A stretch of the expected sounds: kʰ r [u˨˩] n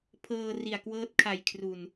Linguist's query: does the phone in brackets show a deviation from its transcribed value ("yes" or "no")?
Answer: no